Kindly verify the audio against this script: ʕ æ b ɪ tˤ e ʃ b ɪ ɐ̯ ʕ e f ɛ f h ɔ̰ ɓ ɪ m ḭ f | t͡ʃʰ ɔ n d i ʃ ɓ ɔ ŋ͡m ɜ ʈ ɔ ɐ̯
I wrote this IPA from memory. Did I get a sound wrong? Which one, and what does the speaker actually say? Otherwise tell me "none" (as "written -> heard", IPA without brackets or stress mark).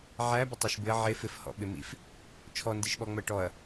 ɛ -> ɪ